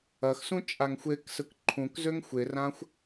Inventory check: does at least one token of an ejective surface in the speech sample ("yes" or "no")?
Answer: yes